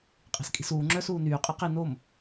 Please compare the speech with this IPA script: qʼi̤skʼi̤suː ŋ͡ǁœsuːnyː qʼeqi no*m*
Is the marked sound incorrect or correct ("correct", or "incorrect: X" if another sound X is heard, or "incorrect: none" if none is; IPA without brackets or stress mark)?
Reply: correct